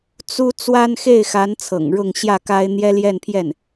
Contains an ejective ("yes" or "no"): no